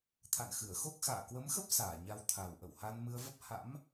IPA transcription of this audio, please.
t̪ʰ a̰˧˨ n x ɨ˧˩ ə̯ x o˦˥ k̚ x a̰ː˧˨ k w ə˨˦ m x ə˦˥ p̚ s aː˧˩ ɲ a˧ w t̪ʰ a˨˩ w ʔ ə̰˧˨ w h a˧ n m ɨ˧ ə̯ v ə˦˥ p̚ h a̰˧˥ m

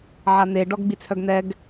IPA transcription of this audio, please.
ʕ a n̪ e ɖ ɔ ɡ ɡ͡b i t͡sʰ œ ɡ n̪ ɛ ɡ

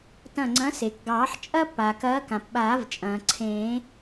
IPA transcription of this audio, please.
t ɐ̃˧˩ ŋ͡ǀ ɐ̃˨˥ s e˩ k ɡ ɑː˨˩˦ ħ t͡ʃʼ ɐ˥ p aː˩ k ɐː˨˥ k ã˩ p ɓ aː˨˩˦ v t͡ʃʼ ɐ̃ː˩ ǀʰ ẽ˨˩˦

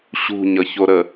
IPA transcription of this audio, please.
ɕ ṳ ɲ ʌ ç o ɾ ə

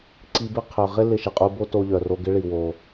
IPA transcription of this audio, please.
ǀ i˧ b ɪ˥ qʰ œ˩ ʁ ɪ˥ l ɪ˧ ʃ ɪ˩ qʼ u˧ b o˥ t o˧ ʎ œ˩ r o˧ ɡ ɪ˧ ɭ i˩ w o˩

